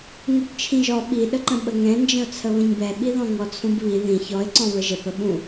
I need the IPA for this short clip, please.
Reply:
ŋ ɯ b t͡ʃʰ ĩ ʒ ɔ ɓ i ɗ ə ǃ ə̃ ɓ ə ŋ ɛ̃ n d͡ʒ ə̃ ʊ̯ t͡sʰ ə β ə̃ ɲ b ɛ ɓ i ð ɔ̃ ŋ ɔ t͡sʰ ũ b β i ð ĩ ç ɔ ɪ̯ ǀ ɔ̃ β ə ʒ ə p ə ɓ ũ

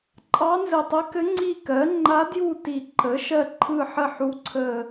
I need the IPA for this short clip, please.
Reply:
ǃʼ ɑ˧˥ n z ɘ˨˩ tˤ ɘ˧˥ k ɘ˧˥ ŋ͡ǀ i˦˨ k ɜ˩˥ ŋ͡ǃ a˧˥ d j u˦˨ t i˨˩ ǃ ə˩˥ ʃ ɜ˦˨ ǃʰ ɯ˦˨ ħ ə˦˨ ħ u˧˥ ǀʰ ə˦˨

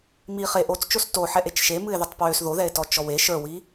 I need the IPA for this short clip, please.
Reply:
m i χ e ʔ o t͡s t͡ʃ o s t o ħ ɛ ʔ e t͡ʃ ʃ e m ɨ e̯ ð e tˤ p w ø s ð o ð ɛ e̯ t ɔ t͡ʃ ɔ w e ʃ ə˞ w i

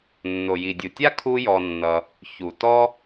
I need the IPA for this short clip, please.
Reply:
nː o˩ j i˩ dʲ u˩ tʲ a˥ kʰ u˥ j ɔ˧ nː ʌ˧ | ç u˩ t ɔ˥

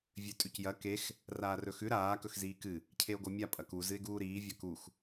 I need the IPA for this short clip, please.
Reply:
vʲ ʉ tʼ ʉ c j ɐ k e x | r aː r ɵ x ʉ ɾ aː k ɵ x z iː k ɨ | cʰ e o̯ ɡ o mʲ a pʼ ɐ k u z ɨ e̯ ɡ uː ɾ iː vʲ ɐ k u x

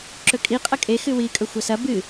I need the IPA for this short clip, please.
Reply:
ǁ ɵ kʼ i qʼ ɐ kʼ e x ɨ w i kʼ ɵ xʷ ɐ s ɐ b ɨ

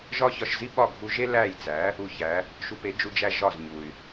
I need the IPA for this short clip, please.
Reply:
ʒ ɒ˥ ç ɒ˧ ʃ z i˥ ɓ ɒ˥˩ ɡʱ u˧ ʒ e˥ l æ˥˩ j t͡s æ˩˥ | u˧ ç æ˩˥ | ʃ u˧ p e˩˥ d͡ʒ u˧ d͡ʒ æ˧ ʒ ɒ˥˩ z ɲ u˩ y̯

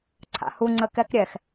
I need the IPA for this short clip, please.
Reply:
ǀʰ a̰ h u ŋ͡ǀ ə k ɛ k ɾʲ ɛ x

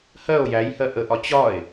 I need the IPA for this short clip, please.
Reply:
h ɜ o̯ j æ j h ɜ ʔ ə ʔ ɒ t͡ɕ ɒ e̯

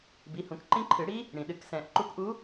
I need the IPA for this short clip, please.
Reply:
b i˩˧˩ h ũ˨˩˦ k ǃ ĩ˦˥ ǃʰ ɨ˨˩˦ ɽ i˦˥ | ɽ ĩ˩ ɗ ɨ˨˩˦ k s ɛ̃˨˩˦ ʔ ǃ u˨˦ k ʔ u˨˦

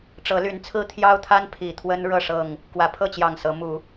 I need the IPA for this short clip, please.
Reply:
ʈ͡ʂ ɤ˨˦ l y˨˦ n t͡sʰ ɹ̩˦ t̪ʰ j ɑ˦ ʊ̯ t̪ʰ a˦ n pʰ i˨˩ t̪ʰ w ə˦ n ɻ ɤ˥˨ ʂ ɤ˥˨ ŋ | k w ä˨˩ pʰ ɤ˥˨ t͡ɕ j ɑ˨˩ ŋ s ɤ˨˦ m u˨˦

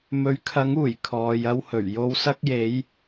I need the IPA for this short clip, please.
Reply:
m ɵ˨˥ ɥ kʰ ɐ˨˥ ŋ uː˨˩ j kʰ ɔː˨˧ j ɐ˥ w h ɵ˨˩ ɥ j o˧ w s ɐ˥ k̚ j e˨˥ j

